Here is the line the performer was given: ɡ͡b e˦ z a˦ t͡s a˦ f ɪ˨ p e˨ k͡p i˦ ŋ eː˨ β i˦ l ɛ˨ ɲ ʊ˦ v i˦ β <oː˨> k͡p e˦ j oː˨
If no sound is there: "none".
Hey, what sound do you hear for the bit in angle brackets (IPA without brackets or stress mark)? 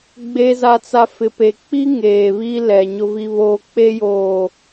oː˦